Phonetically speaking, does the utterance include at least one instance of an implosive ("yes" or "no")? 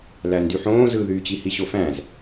no